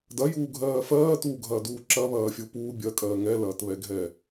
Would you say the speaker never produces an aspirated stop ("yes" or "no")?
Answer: yes